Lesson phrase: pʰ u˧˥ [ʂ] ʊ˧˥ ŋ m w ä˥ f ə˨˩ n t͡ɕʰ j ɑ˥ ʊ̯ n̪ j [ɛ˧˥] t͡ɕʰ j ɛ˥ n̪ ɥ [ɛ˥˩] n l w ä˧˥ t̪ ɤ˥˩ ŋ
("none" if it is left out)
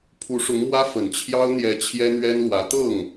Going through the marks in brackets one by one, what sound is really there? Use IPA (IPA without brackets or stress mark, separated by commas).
ʂ, ɛ˧˥, ɛ˥